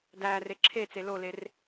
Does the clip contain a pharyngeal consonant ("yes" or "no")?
no